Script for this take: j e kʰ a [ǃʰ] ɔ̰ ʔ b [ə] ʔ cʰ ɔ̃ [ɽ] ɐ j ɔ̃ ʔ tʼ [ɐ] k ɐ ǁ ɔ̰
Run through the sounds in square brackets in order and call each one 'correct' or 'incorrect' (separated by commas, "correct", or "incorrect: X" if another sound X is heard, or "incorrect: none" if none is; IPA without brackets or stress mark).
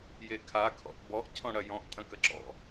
incorrect: kʰ, incorrect: ɔ, correct, incorrect: ɐ̃